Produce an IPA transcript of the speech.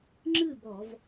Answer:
ŋ͡ǁ ɨ˥˨ b ɔ˧˩˧ v

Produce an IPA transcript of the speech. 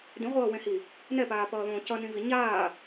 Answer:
d ĩ ʁʷ ʌː w ẽ h i | n ɛ p aː p ʌː ð õː c ʌ n ĩ v i ɲ aː

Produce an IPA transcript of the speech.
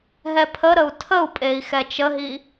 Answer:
ɦ ɛ pʰ ə ɾ ə u̯ tʰ ə u̯ pʼ e i̯ x ɛ t͡ʃ ə ɦ i

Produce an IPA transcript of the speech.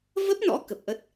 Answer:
v ə˦˥ p̚ n ɔ̰˧˥ k ə˨˩ p̚ ʔ ə˦˥ t̚

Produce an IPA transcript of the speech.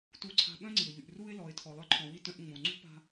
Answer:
t u˧ ǀʰ a̤˧ ɓ œ̃˥ ŋ͡ǀ i˩ ʊ̯ ʎ y˩ ʔ r u˧ ɪ̯ l ɔ˩ ɪ̯ tʰ ɔ˩ lˠ œ˧ ǃʰ ɔ̃˩ w i˧ t œ̃˧ ʔ ŋ͡m õ˩ ŋ͡ǀ ṳ˥ p a̤˧

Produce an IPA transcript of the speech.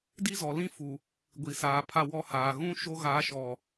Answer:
d i˦ z ɔ˨ l ĩ˦ f u˨ | ɡʷ i˨ s aː˨ pʰ a˦˨ w ɔ˦ h aː˨ ɣ ũ˦ ʃ o˦ ɣ a˨˦ ʃ ɔ˨

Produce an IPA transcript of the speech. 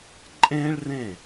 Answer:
ǃʼ ẽ˥ ɭ r ẽ˥˩

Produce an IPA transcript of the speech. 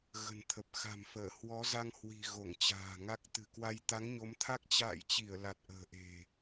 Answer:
ɣ ə̤˨˩ n t̪ʰ ə˨˩ p̚ x a̤˨˩ m f əː˧˩ h w ɔ˨˦ z a˧ ŋ h w i̤˨˩ ɣ o˧˩ ŋ t͡ɕ a̤ː˨˩ ŋ a˦˥ k̚ t̪ ɨ̤˨˩ k w a˧ j t̪ a˨˦ ŋ ɲ o˨˦ m t̪ʰ a˦˥ k̚ t͡ɕ a̰ː˧˨ j t͡ɕ i˧˩ ə̯ l a˨˩ t̚ ʔ ə̤ː˨˩ ʔ e̤˨˩

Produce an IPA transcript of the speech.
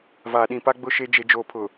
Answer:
v aː˨ ɗ ĩ˨ p a˦ ɡ͡b ʊ˦ ʃ e˦ d͡ʒ e˨ d͡ʒ oː˨ pʰ ʊ˨

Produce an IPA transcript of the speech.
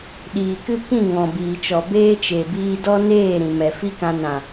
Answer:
ɗ iː˨ k ɨ˦ k ĩ˦˨ ŋ ɔ̃˨ b iː˨ t͡ʃ ɔ˨ b eː˦ t͡ʃ e˨ b iː˧ d ɔ˦ n eː˦˨ ɾ ĩ˨ m ɛ˨ f i˦ k ã˧ n ã˨

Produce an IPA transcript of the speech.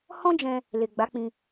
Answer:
h ɔ̃˦ d͡ʒ ɛ̃˧ | l e˨ ɡ͡b a˨˦ k͡p ĩ˧

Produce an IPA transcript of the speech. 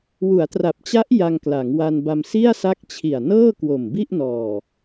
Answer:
w u˩˦ a̯ t r a˨˩ p̚ t͡ɕ a˦˥ ʔ j a˧ ŋ k l a˩˦ ŋ w a˧ n b a˧ m s i˥˩ a̯ s a˦˥ k̚ t͡ɕʰ i˨˩ a̯ n ɤː˥˩ k w o˨˩ m b i˥˩ ʔ n ɔː˨˩

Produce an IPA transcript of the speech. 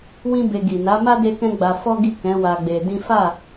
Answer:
w ĩ˦ b e˧ ɡ i˨ n a˨˦ m a˦ d e˦ k ɛ̃˦ ɡ͡b a˧ f ɔ˦ ɡ i˦˨ k ɛ̃˨˦ w a˧ ɡ͡b e˧ d ĩ˦ f a˦˨

